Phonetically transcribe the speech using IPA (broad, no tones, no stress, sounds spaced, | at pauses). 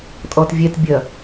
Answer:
tʼ ɔ t vʲ ɛ t bʲ ɐ